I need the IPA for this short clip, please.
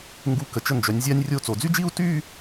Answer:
ŋɡu˧kə˩˧ t͡ʃə˧˩nd͡ʒœ˩˧nʲzʲa˧nʲrʲo˧˩ t͡so˩˧d͡zy˥d͡ʒi˥˧u̯ ty˥˧

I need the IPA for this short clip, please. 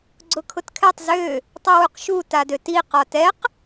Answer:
ɡ͡ǀʊkʰʊtkʰɛtˤ zø | tˤiwuqʃu tadøti qɒtɛq

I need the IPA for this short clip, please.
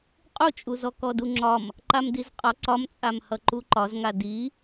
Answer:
qʼut͡ʃʼuzɔ kɔduŋ͡ǁɒm | ǃamdizqʼɒ ǀɒmt͡sʼamhʌ ǃuǃɒzŋa di

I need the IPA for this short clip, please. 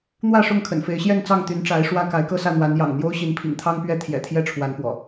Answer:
n̪wä˥˨ʂʊ˥˨ŋkʰə̰˨˩n fe˨˦ɪ̯ɕjɛ˥˨nt͡sɑ˥˨ŋ t̪y˨˦nʈ͡ʂa˨˦ɪ̯ ʂwä˦ ka˨˦ɪ̯kɤ˥˨sä˥˨ n̪wa˨˦njɑ̰˨˩ŋn̪jo˦ʊ̯ ɕi˨˦npʰḭ˨˩ŋt̪ʰɑ˦ŋpɥɛ˥˨ t̪ʰjɛ̰˨˩t̪ʰjɛ˥˨ʈ͡ʂʰwa˨˦n pwɔ̰˨˩

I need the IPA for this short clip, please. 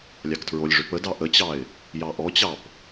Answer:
lʲɑktʰɹolʲʐʏ pədɑ ʔət͡ɕɑɪ̯ | jɑʔɔt͡ɕɑp

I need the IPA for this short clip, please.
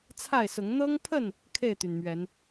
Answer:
t͡sʰa˥˨ɪ̯sʊ˨˦ŋ n̪ɤ˦ŋpʰə˥˨n | kʰe˥˨ɪ̯t̪y˩nmɥɛ˨˦n

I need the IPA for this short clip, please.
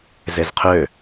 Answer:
zezqʰø

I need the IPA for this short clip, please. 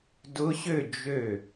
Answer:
dʊ˧˥ɕø˥˨ d͡ʒø˧˩

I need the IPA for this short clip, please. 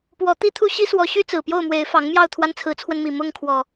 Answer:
pwɔ˨˦ t̪i˦t̪ʰu˦ ɕi˦swɔ˨˦ɕy˦ t͡sɹ̩˨˩pjo˥˨ʊ̯mwe˨˦ɪ̯ fɑ˨˦ŋmjɑ˥˨ʊ̯ t̪ʰwa˦nt͡sʰɹ̩˨˦t͡sʰwə˧nmi˨˩ mʊ˥˨ŋkʰwɔ˨˩

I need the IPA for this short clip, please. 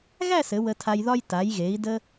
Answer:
ɣæ˥˧sɘ˩˧ wə˧tʰa˧jðɒ˥j ta˩˧jɣe˩˧i̯də˧

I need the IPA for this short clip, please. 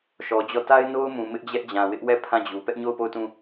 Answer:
ʃɔ˨d͡ʑɔ˦˨ ta˦ɪ̯no˦ʊ̯mũ˨ mɪ˦ʔd͡ʑɛ˦ʔd͡ʑã˨ wɪ˦ʔwɛ˦˨ pʰã˦˨d͡ʑu˨ pɛ˦ʔɲo˦˨ʊ̯po˦˨ʊ̯tũ˦˨

